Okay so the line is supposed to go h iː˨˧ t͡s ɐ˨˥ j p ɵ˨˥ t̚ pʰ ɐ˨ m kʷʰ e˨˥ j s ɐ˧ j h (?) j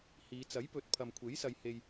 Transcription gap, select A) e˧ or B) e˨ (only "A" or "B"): A